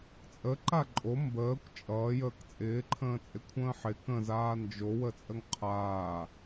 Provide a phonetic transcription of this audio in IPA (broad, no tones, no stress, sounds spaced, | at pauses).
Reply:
t͡sʼ ə ǃ a ǃʼ o m b əː kʷ t͡ʃʼ ʌː j əː k t͡sʼ ɪː ǃʰ ə̃ː t͡sʼ ɪ kʷʰ ə̃ː ħ ɪ k ə̃ z aː n d͡ʒ o w ə t͡sʼ ə ŋ qʰ aː